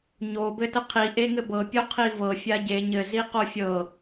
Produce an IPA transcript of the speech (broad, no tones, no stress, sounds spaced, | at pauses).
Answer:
ɲ o b ɘ t ə qʰ i ʔ e ŋ ɘ b ɤ pʲ o qʰ i v ɤ fʲ a ɟ e ɲ ɘ z i q o fʲ ɤ